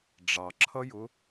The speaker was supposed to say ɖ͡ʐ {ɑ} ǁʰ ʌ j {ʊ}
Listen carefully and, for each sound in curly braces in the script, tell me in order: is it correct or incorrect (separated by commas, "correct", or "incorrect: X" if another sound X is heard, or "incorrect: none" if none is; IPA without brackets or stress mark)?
correct, correct